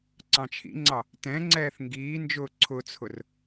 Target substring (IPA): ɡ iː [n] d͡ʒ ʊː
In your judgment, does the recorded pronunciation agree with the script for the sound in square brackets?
yes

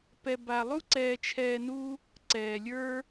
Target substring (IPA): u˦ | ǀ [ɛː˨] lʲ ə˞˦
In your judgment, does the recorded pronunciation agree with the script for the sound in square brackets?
yes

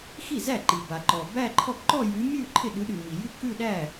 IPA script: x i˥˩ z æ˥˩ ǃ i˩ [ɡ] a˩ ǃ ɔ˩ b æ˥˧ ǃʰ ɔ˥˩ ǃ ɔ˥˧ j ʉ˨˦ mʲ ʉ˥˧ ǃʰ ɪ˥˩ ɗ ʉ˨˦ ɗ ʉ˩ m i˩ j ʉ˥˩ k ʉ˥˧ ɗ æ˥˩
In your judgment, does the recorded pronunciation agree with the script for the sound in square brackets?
no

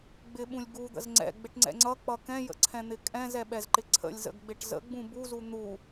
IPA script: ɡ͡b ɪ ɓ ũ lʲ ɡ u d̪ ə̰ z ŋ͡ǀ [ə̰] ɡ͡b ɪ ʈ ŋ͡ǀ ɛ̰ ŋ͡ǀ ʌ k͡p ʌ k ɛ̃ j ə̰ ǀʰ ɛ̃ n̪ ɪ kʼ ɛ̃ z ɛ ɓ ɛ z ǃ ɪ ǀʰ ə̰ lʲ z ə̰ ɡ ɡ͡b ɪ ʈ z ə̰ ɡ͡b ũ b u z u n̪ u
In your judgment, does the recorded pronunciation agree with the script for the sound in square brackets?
no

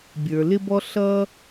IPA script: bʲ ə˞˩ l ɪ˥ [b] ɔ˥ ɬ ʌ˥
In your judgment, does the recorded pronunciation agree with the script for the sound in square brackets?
yes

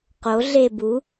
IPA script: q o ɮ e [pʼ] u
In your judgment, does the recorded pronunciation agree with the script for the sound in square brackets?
no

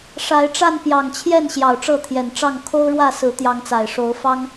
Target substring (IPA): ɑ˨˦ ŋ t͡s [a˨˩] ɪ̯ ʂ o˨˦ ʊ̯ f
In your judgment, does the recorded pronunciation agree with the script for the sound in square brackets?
yes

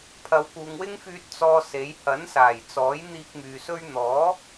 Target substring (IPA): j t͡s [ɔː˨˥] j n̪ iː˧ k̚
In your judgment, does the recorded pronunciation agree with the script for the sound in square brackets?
yes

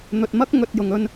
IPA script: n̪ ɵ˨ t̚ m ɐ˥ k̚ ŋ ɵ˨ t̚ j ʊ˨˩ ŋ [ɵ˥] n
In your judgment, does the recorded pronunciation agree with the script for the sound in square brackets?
no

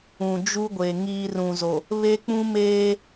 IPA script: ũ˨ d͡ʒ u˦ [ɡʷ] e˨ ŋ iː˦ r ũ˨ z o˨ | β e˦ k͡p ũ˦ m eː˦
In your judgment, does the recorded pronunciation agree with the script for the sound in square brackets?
yes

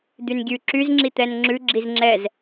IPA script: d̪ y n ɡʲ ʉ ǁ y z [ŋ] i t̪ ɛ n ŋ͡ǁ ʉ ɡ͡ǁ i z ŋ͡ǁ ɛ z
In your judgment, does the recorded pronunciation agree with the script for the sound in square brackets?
no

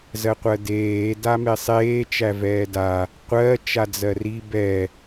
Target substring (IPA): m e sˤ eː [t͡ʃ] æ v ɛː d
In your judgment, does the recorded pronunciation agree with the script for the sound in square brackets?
yes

